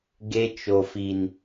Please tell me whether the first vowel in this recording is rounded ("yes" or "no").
no